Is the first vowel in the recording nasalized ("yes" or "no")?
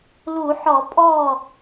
no